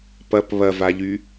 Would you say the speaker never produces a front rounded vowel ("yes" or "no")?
no